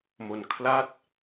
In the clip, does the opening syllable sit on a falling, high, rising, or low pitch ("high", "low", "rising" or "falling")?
low